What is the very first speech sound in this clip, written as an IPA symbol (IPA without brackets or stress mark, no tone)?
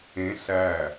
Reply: ẽ